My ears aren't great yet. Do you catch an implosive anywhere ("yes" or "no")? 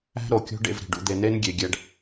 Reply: no